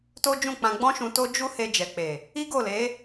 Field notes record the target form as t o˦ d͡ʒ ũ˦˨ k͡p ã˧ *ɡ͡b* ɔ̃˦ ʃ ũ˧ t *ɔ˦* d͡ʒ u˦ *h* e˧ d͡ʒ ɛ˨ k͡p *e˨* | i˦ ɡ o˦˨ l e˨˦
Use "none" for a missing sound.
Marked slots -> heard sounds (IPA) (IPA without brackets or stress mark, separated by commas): ɡ͡b, o˦, h, e˨